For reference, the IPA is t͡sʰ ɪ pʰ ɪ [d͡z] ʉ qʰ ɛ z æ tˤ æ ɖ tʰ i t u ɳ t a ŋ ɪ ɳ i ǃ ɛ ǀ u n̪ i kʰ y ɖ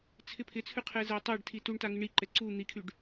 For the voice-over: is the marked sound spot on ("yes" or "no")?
no